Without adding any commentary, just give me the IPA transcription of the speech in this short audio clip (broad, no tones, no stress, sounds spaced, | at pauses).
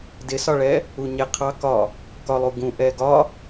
d ɪ s ɒ ɭ ɛ | u ɲ ɛ qʰ ɑ k ɒ | k ɒ lˠ u ɡ ũ ʔ ɛ ɡ ɒ